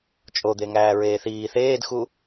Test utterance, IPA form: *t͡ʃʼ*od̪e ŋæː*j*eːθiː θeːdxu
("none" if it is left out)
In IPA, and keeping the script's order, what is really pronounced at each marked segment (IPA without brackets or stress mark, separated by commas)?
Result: t͡ʃʼ, ɹ